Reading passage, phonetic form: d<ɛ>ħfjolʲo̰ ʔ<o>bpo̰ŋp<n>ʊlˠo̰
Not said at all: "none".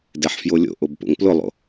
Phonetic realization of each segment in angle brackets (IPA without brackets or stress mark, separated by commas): ɛ, o, l